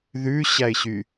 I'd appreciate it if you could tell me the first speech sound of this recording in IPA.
ð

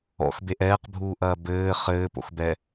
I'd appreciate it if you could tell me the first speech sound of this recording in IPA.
ɔ̰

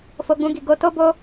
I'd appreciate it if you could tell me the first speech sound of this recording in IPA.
f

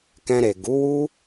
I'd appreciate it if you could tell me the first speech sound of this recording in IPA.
k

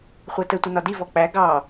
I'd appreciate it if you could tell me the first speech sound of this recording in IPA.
χʷ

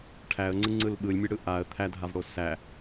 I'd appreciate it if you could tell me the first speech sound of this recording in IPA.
ʈʰ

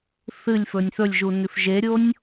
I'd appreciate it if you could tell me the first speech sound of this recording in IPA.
θ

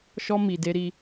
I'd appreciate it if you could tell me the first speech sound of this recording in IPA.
ʃ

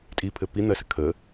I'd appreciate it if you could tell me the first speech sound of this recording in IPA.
tʼ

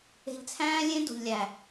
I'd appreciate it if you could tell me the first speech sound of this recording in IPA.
e̤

